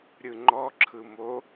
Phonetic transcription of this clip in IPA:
ɾʲ ɯ ŋ͡ǃ ɔ ǁʰ ɯ m o

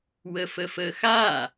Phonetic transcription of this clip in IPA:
w ə f ə f ə x a

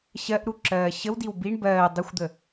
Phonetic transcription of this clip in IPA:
ɕ ɜ ʔ ɾ u ǁ ɜː ɕ ə w d i w b i ɳ b ɜː dˤ ə xʷ d̪ ə

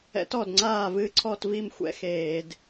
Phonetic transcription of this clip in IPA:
ɛ̰˦˥ t ɔ˥˩ d ŋ͡ǀ aː˥˩ v ɨ˦˥ ǀʰ ɔ˥˧ t v i˥˩ m xʷ ɛ̰˦˥ x eː˧˩˧ d

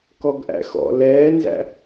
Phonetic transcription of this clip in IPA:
k ɔ ɡ ʔ æ̰ x ɔ̰ l ɛː n z æ̰

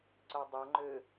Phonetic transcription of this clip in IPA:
ǀ œ dˤ ɐ ŋ͡ǃ ø

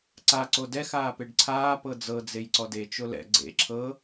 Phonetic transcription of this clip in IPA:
ǀ a ǀ o d ɛ x aː p e ɖ ǀʰ aː p ɤ d͡z ɤ d͡z e j ǀ ɔ d e t͡ʃ o l ɛ̰ ɡ͡ǀ ḛ ǁʰ ɤ

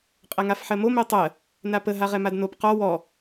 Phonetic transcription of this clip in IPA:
qʼ ɛ ŋ a f ħ ɜ m o m ɛ tˤ ɜ | n a p ə ɦ a ʁ ɛ m a d n o p q ɔ w ɔ

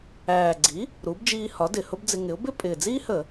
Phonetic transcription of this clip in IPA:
æː˨˩ ɡ͡ǀ i˩˥ | ɾ u˩˥ b d͡ʒ iː˧ h ɒ˩˥ d ɪ˨˩ h ʊ˥ b d͡z ɪ˧ ŋ ɪ˩˥ ʊ̯ b ɪ˥ pʼ ɪː˨˩ d͡z iː˥ h ə˧˩˧

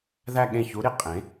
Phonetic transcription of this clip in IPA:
ð æ˥˧ ɠ ẽ˥˩ ç u˧˥ ɾ i˩˥ qʼ ẽ˩˥

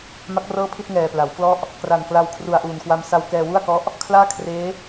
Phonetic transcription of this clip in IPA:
m a˦˥ k̚ r ɤː˥˩ pʰ i˥˩ t̚ ŋ ɛː˨˩ p l a˩˦ w k l ɔ˥˩ ʔ | k r a˨˩ n k l a˧ w kʰ r u˨˩ a̯ ʔ uː˨˩ n k w a˧ m s a˧ w k ɛː˧ w u˥˩ a̯ k ɔ˦˥ ʔ | kʰ l aː˥˩ kʰ r eː˦˥

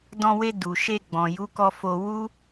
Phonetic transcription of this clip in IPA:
d ɔ̃˧ w e˧ d u˨ ʃ e˧ ɡ͡b ɔ̃˨ j u˨˦ k ɔ˧ f o˧ w u˦

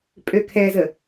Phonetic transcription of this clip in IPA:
pʼ ø kʰ ɛ z ə

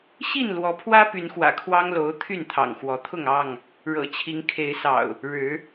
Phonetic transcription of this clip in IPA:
ɕ i˥˨ n l w ɔ˨˦ pʰ w ä˦ p y˨˦ n x w ä̰˨˩ kʰ w ɑ˦ ŋ l o˨˦ ʊ̯ t̪ʰ y˥˨ n t̪ʰ ɑ̰˨˩ ŋ x w ɔ˨˦ t̪ʰ ʊ˥˨ ŋ ɑ˥˨ ŋ | ɻ ɤ̰˨˩ t͡ɕʰ i˨˦ ŋ kʰ e˨˦ ɪ̯ s ɑ̰˨˩ ʊ̯ | ɻ ɻ̩˨˦

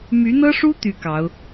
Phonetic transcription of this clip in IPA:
m y˧˥ n̪ ɤ˥ ʂ u˥ t̪ y˥ k ɑ˧˥ ʊ̯

